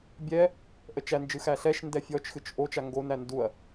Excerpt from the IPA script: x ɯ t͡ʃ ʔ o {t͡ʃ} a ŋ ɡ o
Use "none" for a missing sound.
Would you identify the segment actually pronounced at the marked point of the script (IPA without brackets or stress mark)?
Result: t͡ʃ